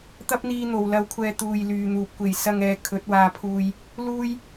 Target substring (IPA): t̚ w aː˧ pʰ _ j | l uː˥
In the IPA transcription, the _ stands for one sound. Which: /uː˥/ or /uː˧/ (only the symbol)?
uː˧